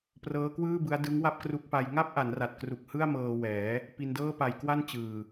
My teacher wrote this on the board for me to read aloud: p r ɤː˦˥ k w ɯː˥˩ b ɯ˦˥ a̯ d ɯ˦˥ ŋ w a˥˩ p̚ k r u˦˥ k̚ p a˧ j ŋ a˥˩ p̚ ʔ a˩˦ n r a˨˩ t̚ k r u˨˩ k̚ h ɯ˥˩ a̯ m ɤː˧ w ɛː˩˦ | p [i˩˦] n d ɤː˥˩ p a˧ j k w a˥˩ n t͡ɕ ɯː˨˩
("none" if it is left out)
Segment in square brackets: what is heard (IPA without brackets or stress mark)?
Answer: i˧